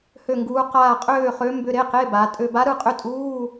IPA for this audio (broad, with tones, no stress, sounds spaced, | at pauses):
h ø˥˧ ŋ ɡ uː˧˥ q aː˥˧ qʼ øː˥˧ χ ø˧˥ m b ʏ˧˥˧ ɾ e˧˥˧ q e˧˥˧ b a˩˧ tʼ ø˧ b a˧˥ ɾ ɯ˥˧ qʼ ʏ˧˥˧ tʼ uː˧˥˧